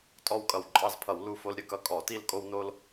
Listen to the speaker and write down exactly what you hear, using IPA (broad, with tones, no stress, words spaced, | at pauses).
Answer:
tʼɔ˥˧wkʼʌ˧˩wǃʼɑ˥˧zpʰʌ˧˩˧w lu˥˧fo˥l ɾʲə˥kʌ˨˦ kʼɔ˧˩˧ti˥˧l kʼo˥wno˥l